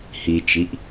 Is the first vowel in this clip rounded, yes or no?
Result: no